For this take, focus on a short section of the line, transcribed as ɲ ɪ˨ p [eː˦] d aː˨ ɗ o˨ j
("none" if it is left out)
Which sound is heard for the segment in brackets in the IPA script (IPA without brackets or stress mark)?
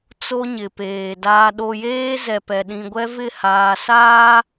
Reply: eː˨